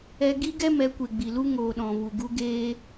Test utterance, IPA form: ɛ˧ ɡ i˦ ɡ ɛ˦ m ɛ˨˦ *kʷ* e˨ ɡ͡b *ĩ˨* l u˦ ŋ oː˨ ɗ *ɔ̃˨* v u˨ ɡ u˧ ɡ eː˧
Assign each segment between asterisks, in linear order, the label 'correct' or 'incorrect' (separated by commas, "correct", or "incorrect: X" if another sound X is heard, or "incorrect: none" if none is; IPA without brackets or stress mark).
correct, incorrect: i˨, correct